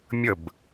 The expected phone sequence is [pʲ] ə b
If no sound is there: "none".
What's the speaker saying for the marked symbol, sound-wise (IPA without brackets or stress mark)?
mʲ